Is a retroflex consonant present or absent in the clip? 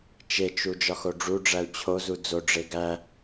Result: present